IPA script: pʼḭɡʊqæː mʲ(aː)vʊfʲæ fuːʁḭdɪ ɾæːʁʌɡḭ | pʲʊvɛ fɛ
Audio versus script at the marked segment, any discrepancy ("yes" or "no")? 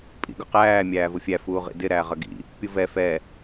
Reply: yes